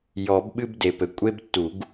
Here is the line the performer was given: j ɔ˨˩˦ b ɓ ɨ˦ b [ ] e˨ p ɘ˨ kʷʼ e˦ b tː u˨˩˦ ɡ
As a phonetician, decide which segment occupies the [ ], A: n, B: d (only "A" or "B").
B